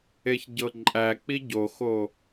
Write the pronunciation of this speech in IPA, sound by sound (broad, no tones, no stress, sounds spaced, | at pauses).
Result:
e ç ɟ ɤ ǃʼ æ k͡p i ɟ o x o